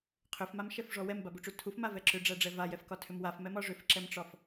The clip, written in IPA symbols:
qʰʏfmamʃɛfʐɔ wɛmbabuʈ͡ʂu tʰufmavɛ ǁʏɖ͡ʐæɖ͡ʐɛ vajɛfkɒtʰʏm wafmɛmɒ ʐʏfǁɛmʈ͡ʂɒf

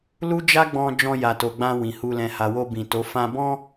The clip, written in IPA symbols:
lu˦d͡ʒa˦ɡ͡bɔ̃˧ d͡ʒɔ̃˧ja˨to˨ɡ͡bã˧ wĩ˨hu˧ lɛ̃˨ha˨wo˧ bĩ˨to˨˦ fã˧bɔ̃˦

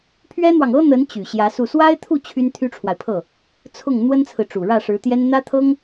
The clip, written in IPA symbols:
pʰɥɛ˥n̪wɑ˨ŋ ɤ˥n̪ə˧˥n t͡ɕy˨˩ɕjä˧˥su˥˩ swa˥ɪ̯t̪ʰu˥˩ t͡ɕʰy˥nt̪ʰy˥ʈ͡ʂʰwa˨ɪ̯pʰɤ˥˩ | t͡sʰʊ˥˩ŋ n̪wə˥nt͡sʰɹ̩˨ʈ͡ʂu˨˩ ɻä˥˩ʂɻ̩˧˥t̪jɛ˥n n̪ä˥t̪ʰɤ˥ŋ

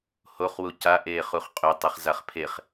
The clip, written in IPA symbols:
hoχwu ca ʔeːχuχqʼø tˤeχzaχpʰeχ

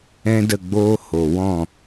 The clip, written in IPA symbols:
ɛ̃˦də˦˨ɡ͡boː˦ ho˨wɔ̃˦˨

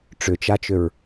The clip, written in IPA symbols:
ʈ͡ʂʏt͡ʃat͡ʃʏɹ

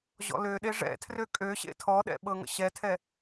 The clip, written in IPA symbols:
ʑɔ̰løɗe ʐɛ̰tʰrø kʼøɕḛ tʰɔɗɛ̰ ɓɤŋə̰ɕɛtʰɛ

